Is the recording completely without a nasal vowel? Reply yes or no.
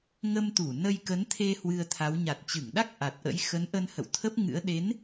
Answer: yes